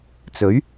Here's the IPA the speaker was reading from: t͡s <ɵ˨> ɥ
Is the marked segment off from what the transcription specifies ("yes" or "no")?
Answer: yes